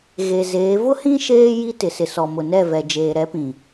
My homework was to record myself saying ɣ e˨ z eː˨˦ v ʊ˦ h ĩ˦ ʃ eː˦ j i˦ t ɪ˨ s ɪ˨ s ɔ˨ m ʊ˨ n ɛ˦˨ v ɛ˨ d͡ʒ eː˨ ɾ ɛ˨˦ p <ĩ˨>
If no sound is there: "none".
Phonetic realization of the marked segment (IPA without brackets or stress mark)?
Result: ĩ˨